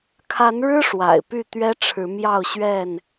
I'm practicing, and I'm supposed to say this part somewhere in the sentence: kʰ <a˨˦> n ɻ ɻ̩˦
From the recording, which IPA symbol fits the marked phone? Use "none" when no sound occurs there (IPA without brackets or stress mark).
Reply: a˨˦